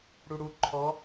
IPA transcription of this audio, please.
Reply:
ɽ u ɽ u ǃʰ ɔ

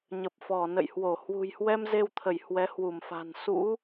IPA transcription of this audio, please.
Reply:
ɲ ə˨˩ p̚ f ɔ˧˩ n ə̰˧˨ j h w o˧˩ h w ṳ˨˩ j h w ɛ˧ m z e˧ w t̪ʰ ə˧˩ j h w ɛ˨˦ h w u˧˩ m f a̤˨˩ n s ṵ˧˥

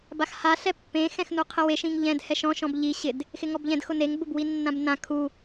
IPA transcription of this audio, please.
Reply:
b a x h a ɬ ɛ pː ẽ x ɛ̃ x n u qʰ ɪ w e ʃ ĩ ŋ ʎ ɛ̃ d h ɛ ʃ ɔ̃ ʃ ɔ̃ b ʎ i ɕ ɪ d | x ɪ ŋ ɔ b ʎ ɛ̃ d x ʊ n e ŋ b ʊ b w i nː ã b n ã kʰ u

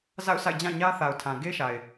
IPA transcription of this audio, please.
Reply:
z a̰˦˨ ʊ̯ sʰ a̰˦˨ ɪ̯ d͡ʑ ã˦˨ ɲ ä˦ θ a˨ ʊ̯ tʰ ã˨ ɡ e˦ ʃ a˨ ɪ̯

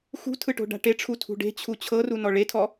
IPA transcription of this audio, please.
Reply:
x ṳ tʰ ɯ ʈ o̤ ɖ a̤ ʈ e ʈ͡ʂʰ u tʰ ṳ ɖ e̤ t͡ɕʰ u t͡ɕʰ ɤ r u n ɔ ɭ e tʰ ɔ

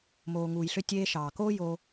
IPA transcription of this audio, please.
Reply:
m oː˩ ŋ uː˩ j ɬ ø˧ tʲ eː˧ ʃ ɑː˩ k oː˥ j oː˧

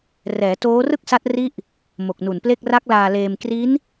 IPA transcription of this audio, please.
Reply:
r ɛː˩˦ t oː˦˥ r ɯ˥˩ k̚ s a˦˥ t̚ r i˦˥ ʔ | m o˨˩ k̚ n u˨˩ n p l e˥˩ k̚ r a˦˥ k̚ l aː˧ l eː˧ m k r i˦˥ n

